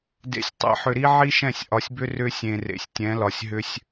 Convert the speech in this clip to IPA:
dḛ˨sʲtˤɛ̰˨ ħʏ˨ɾi˦ʕi˦ ʃɛ̃˦˨sʲʔɒ˨sʲbʏ˦ rʏ˦ sʲẽ˨rḛ˨sʲ tʲɛ̃˨˦lɒ˨sʲɦʏ˦sʲ

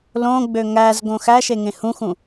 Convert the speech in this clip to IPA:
lõɡ͡bø ŋæzɡõx æʃeŋẽ hũxũ

